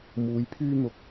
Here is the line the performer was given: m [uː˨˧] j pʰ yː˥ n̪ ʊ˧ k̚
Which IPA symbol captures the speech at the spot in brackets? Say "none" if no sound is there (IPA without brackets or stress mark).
uː˨˧